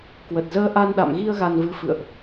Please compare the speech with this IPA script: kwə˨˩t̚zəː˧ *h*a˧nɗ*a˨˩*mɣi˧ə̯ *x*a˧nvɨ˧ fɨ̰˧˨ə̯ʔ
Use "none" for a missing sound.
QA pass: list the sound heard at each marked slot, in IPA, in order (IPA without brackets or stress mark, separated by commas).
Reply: ʔ, a̰˧˨, ɣ